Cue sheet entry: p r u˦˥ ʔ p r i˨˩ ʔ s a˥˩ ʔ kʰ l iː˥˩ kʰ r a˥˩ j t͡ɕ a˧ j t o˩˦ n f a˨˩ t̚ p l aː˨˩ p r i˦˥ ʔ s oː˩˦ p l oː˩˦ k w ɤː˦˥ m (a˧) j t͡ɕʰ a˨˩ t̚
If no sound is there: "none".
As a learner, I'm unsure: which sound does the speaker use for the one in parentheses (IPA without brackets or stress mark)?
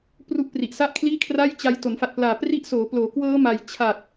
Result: a˧